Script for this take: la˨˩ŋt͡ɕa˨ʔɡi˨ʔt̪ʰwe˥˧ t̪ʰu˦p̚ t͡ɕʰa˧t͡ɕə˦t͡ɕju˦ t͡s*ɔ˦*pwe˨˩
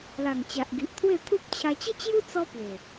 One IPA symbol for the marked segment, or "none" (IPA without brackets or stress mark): ɔ˦